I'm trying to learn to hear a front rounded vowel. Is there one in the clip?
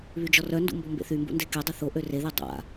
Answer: yes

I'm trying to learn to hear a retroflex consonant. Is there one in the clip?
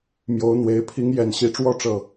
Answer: yes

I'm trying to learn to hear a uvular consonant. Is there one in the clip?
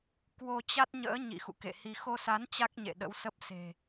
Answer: no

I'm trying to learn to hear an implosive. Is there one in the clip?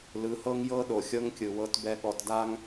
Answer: yes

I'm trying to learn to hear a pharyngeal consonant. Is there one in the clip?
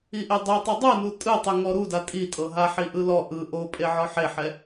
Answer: yes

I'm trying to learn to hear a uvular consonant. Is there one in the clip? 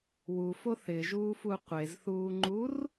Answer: yes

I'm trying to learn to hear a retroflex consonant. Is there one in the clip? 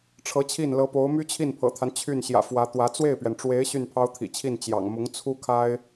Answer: yes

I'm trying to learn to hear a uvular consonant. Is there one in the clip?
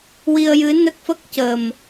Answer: no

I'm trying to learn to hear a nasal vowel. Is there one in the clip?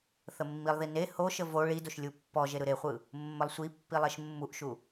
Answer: no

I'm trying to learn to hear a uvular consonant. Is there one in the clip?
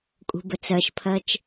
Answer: no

